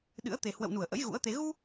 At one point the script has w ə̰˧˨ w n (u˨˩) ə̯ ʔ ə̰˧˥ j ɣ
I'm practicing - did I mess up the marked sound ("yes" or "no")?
yes